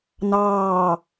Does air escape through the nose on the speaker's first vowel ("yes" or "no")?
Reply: no